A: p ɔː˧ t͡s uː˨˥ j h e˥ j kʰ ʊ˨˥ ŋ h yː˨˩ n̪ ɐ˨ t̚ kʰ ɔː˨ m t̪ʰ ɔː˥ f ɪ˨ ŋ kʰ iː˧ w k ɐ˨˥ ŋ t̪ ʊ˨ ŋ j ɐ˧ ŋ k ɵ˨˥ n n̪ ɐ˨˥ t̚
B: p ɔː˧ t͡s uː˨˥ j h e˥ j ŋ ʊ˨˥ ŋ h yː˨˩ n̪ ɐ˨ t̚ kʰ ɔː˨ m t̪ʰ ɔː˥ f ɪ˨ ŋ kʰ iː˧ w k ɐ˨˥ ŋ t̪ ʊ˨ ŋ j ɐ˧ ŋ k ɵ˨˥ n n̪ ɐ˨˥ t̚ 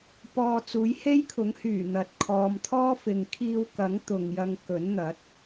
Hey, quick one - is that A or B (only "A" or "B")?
A